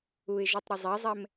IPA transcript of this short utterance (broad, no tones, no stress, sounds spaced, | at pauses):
u ɪ̯ ʒ o tˤ ɾ ʊ zˤ e zˤ ɛ m